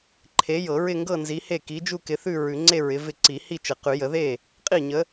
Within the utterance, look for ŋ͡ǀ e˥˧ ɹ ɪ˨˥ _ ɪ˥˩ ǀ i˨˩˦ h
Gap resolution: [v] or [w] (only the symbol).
v